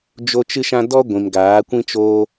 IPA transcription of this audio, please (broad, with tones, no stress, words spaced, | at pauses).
d͡ʒo˦ t͡ʃɨ˦ʃã˦ dɔ˦ɡʷĩ˨m ɡaː˨˦kʷĩ˦t͡ʃoː˦